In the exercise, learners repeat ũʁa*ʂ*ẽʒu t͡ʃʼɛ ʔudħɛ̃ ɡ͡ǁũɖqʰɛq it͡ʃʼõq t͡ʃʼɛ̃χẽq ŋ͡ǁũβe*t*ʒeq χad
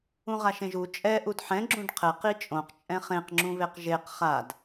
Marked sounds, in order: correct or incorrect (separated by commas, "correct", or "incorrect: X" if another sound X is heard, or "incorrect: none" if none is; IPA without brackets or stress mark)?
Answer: incorrect: ʃ, incorrect: q